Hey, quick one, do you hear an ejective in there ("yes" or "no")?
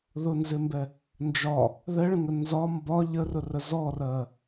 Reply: no